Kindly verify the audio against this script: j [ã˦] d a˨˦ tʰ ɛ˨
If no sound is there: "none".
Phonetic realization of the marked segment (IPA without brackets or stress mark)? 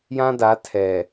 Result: ã˦